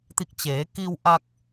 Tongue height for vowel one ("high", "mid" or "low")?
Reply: high